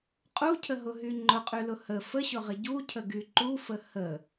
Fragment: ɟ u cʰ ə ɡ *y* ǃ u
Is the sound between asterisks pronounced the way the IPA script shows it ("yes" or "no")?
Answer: yes